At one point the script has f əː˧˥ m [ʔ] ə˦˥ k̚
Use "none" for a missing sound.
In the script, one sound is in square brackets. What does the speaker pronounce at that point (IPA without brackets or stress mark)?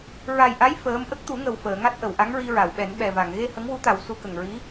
ʔ